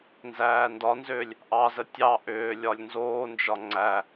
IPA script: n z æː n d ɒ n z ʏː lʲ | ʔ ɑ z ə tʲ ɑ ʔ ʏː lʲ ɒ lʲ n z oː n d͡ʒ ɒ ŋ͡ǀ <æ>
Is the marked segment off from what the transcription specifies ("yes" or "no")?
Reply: no